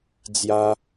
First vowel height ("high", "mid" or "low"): low